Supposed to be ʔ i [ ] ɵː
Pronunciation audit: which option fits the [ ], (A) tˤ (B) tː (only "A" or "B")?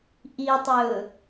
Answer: A